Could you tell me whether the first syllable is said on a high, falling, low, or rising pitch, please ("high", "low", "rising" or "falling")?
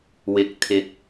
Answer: low